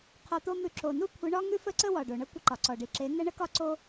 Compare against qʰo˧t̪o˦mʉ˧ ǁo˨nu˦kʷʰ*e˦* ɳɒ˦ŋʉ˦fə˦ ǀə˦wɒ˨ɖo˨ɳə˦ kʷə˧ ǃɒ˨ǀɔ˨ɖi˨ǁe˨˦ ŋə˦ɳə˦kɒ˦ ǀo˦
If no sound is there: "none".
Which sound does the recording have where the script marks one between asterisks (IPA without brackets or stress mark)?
e˨˦